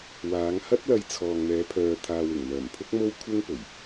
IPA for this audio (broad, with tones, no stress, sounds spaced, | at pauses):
w aː˨˧ ŋ h ɐ˥ t̚ l ɐ˧ j t͡sʰ ɔː˨ ŋ n̪ ɛː˨˧ pʰ œː˨ t̪ʰ aː˨ w ɪ˨˩ ŋ m œː˨˩ m pʰ ʊ˥ k̚ m o˥ w kʷʰ ɪ˥ ŋ p ɵ˨˩ ɥ